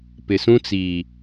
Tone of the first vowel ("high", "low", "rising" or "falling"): low